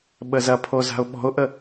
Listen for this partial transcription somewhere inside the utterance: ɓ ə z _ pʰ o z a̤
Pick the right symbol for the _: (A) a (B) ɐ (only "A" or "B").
B